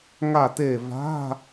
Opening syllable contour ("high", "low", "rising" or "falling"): falling